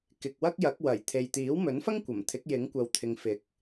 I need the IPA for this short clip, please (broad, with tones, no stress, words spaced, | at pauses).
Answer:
kɪ˨k̚ wɐ˥k̚jɐ˨˥k̚ wɐ˨˩j t̪ʰe˨j t̪iː˨˥wmɵ˨˥nfɐ˥ŋ kʷɐ˨˩m t̪ʰɪ˨˥k̚jɪ˨˥ŋkʷɐ˨w t̪ʰɪ˨˧ŋfɪ˨˥k̚